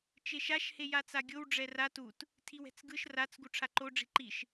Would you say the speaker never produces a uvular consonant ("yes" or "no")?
yes